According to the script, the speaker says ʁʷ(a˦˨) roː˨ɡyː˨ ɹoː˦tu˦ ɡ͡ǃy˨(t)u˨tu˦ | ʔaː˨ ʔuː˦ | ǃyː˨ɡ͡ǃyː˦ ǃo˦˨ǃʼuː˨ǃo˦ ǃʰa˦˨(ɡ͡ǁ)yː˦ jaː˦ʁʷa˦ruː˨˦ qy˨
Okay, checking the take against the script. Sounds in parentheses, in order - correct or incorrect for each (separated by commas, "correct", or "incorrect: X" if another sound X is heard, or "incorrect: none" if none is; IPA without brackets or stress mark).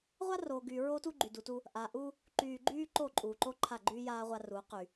incorrect: a˦, incorrect: d, incorrect: ɡ͡ǃ